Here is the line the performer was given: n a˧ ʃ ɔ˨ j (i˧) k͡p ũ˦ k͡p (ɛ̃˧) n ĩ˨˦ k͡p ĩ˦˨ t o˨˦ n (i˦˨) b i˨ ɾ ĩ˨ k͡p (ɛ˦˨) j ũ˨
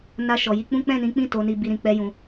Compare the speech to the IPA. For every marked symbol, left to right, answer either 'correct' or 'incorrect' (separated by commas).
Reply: correct, incorrect, incorrect, incorrect